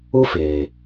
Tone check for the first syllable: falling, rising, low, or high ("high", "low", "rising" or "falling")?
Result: high